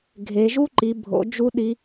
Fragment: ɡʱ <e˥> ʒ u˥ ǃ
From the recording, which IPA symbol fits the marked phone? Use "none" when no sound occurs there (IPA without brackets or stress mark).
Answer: e˩˧